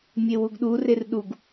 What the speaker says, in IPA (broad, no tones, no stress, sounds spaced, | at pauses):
mʲ e w u ɡ ɗ u r e r ɗ u ɡ